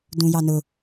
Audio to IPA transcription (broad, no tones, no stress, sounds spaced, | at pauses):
d ũ j ɑ n ʊ